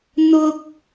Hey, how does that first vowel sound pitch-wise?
high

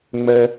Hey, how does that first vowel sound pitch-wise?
high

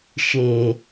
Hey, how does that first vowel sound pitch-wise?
low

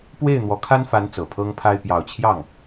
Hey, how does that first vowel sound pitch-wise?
falling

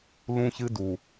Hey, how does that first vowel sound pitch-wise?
high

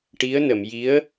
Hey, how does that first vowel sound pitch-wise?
rising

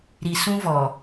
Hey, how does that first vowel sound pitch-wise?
low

